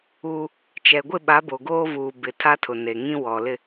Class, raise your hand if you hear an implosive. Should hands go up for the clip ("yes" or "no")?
yes